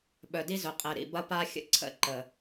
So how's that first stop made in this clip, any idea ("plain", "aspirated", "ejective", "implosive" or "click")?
implosive